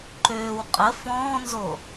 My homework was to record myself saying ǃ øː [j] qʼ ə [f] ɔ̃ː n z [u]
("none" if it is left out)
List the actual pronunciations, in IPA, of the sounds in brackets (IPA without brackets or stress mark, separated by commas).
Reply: w, f, o